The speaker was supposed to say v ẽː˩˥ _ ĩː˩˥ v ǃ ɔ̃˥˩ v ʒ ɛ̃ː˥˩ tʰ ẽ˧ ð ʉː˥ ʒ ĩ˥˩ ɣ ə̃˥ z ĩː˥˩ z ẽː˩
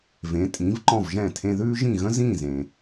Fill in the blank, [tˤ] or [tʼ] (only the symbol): tʼ